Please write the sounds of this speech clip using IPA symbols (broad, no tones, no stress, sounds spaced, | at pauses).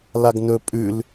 l a ɡ n̪ ɵ pʼ ʉ l